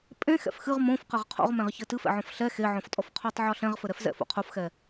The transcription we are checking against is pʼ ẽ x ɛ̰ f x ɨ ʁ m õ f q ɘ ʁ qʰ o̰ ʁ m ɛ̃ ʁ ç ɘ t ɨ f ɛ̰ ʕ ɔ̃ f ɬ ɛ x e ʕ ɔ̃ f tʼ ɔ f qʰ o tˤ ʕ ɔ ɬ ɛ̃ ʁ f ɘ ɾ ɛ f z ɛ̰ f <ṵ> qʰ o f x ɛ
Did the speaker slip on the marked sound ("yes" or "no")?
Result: yes